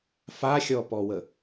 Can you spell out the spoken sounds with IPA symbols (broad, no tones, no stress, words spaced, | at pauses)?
faxʲɔpɔwə